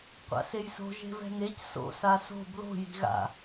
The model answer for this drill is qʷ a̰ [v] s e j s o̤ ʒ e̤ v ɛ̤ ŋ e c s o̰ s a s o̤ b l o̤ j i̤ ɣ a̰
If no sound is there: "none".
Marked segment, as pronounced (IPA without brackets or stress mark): none